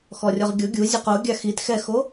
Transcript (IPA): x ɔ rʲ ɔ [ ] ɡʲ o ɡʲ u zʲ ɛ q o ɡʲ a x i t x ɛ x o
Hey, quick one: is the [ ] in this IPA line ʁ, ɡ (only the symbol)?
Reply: ʁ